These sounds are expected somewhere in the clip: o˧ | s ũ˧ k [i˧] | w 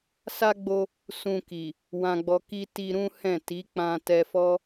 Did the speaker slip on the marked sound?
yes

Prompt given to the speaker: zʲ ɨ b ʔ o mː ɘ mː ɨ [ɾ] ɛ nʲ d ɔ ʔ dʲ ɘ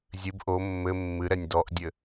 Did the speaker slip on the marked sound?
no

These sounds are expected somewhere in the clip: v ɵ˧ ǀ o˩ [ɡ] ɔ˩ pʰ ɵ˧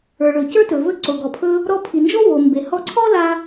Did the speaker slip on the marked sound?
no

